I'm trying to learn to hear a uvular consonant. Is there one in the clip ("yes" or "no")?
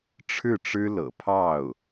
no